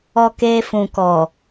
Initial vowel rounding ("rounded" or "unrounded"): rounded